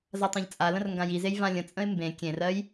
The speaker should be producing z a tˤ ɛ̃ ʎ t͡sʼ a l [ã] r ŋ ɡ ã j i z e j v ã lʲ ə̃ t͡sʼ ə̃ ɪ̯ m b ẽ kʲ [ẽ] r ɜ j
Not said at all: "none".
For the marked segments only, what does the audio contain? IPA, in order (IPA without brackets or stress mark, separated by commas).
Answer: ə̃, ẽ